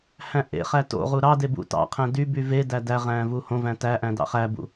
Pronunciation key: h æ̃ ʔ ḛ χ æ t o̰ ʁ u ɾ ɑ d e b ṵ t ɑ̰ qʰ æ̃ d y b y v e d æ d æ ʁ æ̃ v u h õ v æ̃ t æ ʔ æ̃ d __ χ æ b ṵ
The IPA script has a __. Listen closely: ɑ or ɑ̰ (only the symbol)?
ɑ̰